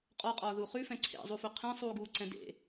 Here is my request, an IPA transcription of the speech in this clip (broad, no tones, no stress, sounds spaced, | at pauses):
qʼ ɔ qʼ ɒː ð u χ ʉ f ɛ̃ ǀʰ ḛ zˤ u f ɵ qʰ ɛ̃ sˤ uː ɡ uː ǀ ɛ̃ d ḛ